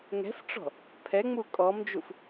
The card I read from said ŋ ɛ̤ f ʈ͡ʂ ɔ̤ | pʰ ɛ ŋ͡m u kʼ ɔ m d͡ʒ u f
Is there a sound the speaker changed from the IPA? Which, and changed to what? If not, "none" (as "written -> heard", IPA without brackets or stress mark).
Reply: none